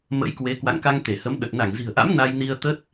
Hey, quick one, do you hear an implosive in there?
yes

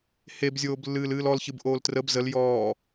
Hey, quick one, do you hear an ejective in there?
no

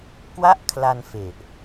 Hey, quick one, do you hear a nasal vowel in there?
no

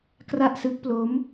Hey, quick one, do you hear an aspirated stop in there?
no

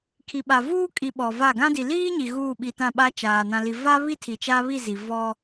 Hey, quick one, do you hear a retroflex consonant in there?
no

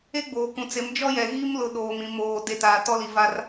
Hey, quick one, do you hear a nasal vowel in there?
yes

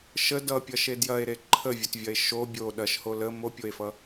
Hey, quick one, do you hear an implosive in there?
yes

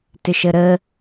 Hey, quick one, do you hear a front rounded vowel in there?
yes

